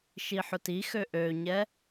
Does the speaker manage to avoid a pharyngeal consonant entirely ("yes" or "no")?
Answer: no